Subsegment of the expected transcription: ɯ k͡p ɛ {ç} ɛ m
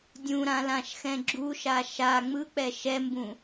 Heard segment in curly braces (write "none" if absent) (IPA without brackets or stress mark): ʃ